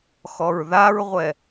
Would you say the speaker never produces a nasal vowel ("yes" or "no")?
yes